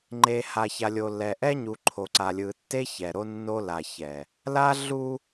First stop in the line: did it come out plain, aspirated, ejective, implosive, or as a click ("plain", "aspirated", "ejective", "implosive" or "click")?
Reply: click